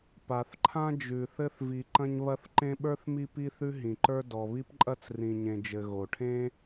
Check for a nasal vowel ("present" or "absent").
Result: present